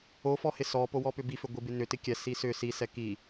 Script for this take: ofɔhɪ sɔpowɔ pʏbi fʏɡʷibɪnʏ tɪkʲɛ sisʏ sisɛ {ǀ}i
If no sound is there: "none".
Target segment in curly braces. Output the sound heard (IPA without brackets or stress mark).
k